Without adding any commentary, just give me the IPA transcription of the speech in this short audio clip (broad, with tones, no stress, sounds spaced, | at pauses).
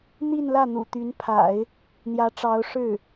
n̪ i˥˧ n l ä˥˩ n̪ ṵ˨˩ t̪ y˧˥ n pʰ a̰˨˩˦ ɪ̯ | n̪ j ä˧˥ ʈ͡ʂ ɑ˧˥ ʊ̯ ʂ ɻ̩˥˩